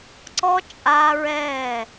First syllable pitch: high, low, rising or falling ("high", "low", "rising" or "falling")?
high